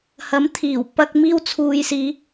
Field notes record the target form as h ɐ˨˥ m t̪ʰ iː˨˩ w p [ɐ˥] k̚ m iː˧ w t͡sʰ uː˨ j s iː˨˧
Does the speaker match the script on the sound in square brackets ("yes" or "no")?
no